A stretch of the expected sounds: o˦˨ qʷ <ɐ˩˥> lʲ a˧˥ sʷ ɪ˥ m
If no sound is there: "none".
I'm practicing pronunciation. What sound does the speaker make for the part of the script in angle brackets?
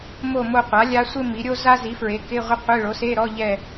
a˩˥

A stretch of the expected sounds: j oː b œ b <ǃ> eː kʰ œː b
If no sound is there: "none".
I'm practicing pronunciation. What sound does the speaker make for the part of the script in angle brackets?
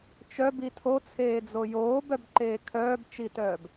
ǃ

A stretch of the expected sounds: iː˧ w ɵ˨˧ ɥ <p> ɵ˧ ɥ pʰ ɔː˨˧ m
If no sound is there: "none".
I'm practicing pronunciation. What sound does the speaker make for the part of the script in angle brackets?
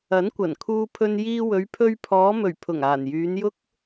pʰ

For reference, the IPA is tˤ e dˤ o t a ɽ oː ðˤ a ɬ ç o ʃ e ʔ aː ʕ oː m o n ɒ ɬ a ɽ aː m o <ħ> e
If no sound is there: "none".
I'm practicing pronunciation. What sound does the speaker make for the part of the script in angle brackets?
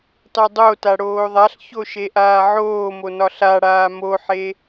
ħ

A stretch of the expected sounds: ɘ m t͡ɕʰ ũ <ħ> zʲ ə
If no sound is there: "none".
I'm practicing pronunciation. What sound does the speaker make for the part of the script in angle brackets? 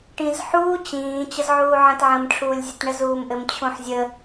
ħ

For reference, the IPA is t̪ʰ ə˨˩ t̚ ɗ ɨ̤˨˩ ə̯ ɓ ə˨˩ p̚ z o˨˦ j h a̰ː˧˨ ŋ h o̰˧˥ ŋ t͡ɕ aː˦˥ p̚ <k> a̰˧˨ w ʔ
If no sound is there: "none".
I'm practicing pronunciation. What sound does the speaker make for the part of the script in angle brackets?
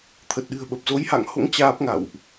ŋ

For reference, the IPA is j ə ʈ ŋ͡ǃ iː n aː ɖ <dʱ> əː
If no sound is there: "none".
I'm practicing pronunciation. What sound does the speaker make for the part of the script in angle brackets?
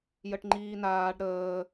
ɾ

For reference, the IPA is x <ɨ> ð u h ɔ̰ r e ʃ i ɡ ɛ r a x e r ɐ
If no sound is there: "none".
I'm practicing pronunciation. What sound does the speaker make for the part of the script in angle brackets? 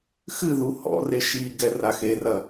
ɨ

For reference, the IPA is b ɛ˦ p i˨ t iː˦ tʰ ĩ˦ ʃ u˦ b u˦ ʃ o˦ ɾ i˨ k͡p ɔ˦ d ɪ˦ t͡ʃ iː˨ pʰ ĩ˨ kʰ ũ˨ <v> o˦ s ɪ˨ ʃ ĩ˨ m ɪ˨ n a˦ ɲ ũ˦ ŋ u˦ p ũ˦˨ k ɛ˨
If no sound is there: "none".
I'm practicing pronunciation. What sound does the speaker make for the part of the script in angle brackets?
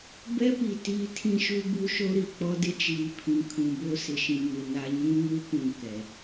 b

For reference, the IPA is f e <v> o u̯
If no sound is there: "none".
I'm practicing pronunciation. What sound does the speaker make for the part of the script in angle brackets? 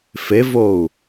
v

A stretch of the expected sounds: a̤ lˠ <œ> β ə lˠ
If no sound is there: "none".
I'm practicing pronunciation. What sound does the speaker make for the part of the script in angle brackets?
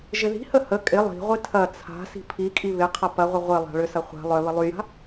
œ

